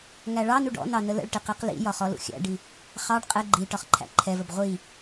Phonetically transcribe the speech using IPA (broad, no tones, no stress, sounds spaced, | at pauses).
ŋ æ ɭ ɑ n u ɖ ɔ̰ n ɑ n ə l ə̰ ɭ ʈ i q i q l ḭ j ɒ χ ɔ l ṵ xʲ æ̰ ɖ i | χ ɑ ɖ qʼ ɛ ɡ͡ǃ i ʈ ɒ χ ǃʰ æ̰ ǃʰ ɛ v ə b ʁʷ i